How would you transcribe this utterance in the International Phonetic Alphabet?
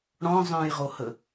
ɽɔ̃ zˤœ̃jʁohə

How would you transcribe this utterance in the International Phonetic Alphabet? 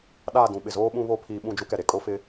ɗaː˦˨dũ˨ɓɪ˨zoː˦ ɓũ˦βo˦ pʰiː˦ ɓũ˦˨d͡ʒu˦kɛ˨ ɾe˨kʼo˦ fɪ˦

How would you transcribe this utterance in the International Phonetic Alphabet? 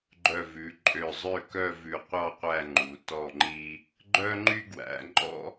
ɡ͡ǃœ˧˩vʉ˩˧ǃʼø˧˩zˤø˥˧ kœ˥˧vʉ˧˩qʷɑ˥˧ qʷæ˥˧ŋ͡ǃu˩˧ tɔ˧˩ŋ͡ǃi˧ | ɡ͡ǃœ˥ŋ͡ǃy˥ɡwæ̰˩˧ ŋ͡ǃɔ̰˥

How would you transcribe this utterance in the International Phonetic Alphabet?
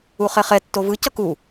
uχɛχɛ tːovɯ cʌku

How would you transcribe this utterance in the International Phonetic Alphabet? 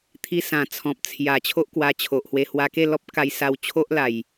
t̪ʰi˧sã˨˩ t͡sʰɔ̃˨p̚t͡sʰja˨˩ t͡ɕʰo˦ʔkwa˧t͡ɕʰo˨ʔhwe˧ hwa˧ke˥˧lɔ˦p̚ ka˧jsa˧w t͡ɕʰo˦ʔla˨˩j

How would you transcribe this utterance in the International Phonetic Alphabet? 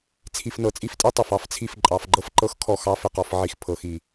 t͡sʰi˧fnɤ˧˩˧t͡sʼi˥˧ftʼi˥ tˤɪ˨˩fɑ˥ft͡sʰi˥˩f ǃʼɑ˧˩˧fɡ͡ǃɤ˥fǃɤ˥x kʰɔ˥˩xɑ˥fɪ˥˩qɔ˧f ʕi˧xpʰɤ˧˩˧xi˧˩˧

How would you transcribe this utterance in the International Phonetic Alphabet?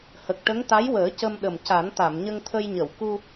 hə˨˩k̚ʈə˧˥ŋ t̪a˧˥jwəː˨˩˦ cə˧mɗə˨˩m ca˨˩˦nt̪a˨˩˨mɲə˧ŋt̪ʰə˧j ɲə˨˩˨wku˧

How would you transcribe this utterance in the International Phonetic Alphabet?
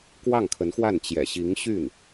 kwɑ˥˩ŋkʰə˧˥nxwa˥˩n t͡ɕjɛ̰˨˩ɕi˧˥ŋɕy˥˩n

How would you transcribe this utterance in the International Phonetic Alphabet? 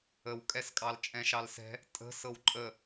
əwkʼɛskʼɑl t͡ʃʼɛ̃ʃɑlsɛ̤ | tʼə̤ sɤwǃʼə

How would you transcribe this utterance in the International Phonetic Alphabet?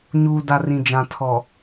ɲuː˨da˨ rĩ˨d͡ʒã˨ tʰɔ˨

